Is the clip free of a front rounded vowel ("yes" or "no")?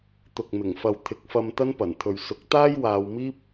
yes